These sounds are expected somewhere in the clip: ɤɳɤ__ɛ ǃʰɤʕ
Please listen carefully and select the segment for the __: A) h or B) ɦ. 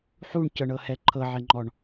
A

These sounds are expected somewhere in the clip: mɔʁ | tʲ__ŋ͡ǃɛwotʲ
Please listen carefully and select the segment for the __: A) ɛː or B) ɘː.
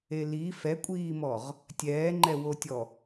A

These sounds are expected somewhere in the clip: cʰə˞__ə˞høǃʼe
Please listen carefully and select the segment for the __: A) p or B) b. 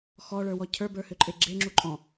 B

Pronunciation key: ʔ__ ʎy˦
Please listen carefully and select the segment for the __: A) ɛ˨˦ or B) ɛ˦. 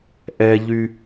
B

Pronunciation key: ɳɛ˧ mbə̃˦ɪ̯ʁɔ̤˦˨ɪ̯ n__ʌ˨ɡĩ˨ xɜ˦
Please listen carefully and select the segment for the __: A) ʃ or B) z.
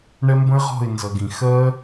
B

